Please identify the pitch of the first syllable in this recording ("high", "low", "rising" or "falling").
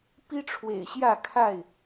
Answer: high